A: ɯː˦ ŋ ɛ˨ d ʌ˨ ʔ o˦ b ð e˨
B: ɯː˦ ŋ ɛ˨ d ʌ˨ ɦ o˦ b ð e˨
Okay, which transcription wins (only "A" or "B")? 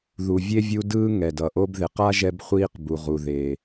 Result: A